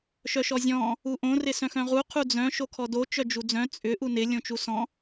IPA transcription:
ʃœʃɔzʲɔ̃ | uʔõ rɪsœ̃xœ̃ʁu qʰud͡zœ̃ ʃokʰɔdo t͡ʃœd͡ʒud͡zœ̃ t͡sʼʏ ʔunɪ lʲõt͡ʃusɔ̃

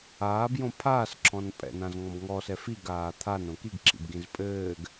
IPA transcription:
aːbjõ pʰaːsǁʰɔ̃n pʼɛ̰nãzŋɔ̃b ŋɔsɛ fiɡaː t̪ʰanõ kiɡǁʰḭbɡĩz pʼɘːɡ

